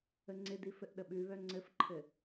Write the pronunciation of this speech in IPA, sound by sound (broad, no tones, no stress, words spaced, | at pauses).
əŋ͡ǀɪdi fɘʔɗəɓʉβœ ŋ͡ǀɘfǃʰɘ